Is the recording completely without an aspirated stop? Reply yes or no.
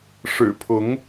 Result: no